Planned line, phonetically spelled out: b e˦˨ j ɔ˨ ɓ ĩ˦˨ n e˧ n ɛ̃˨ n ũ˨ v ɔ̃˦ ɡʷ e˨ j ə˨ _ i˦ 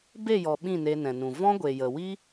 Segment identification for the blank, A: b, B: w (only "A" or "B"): B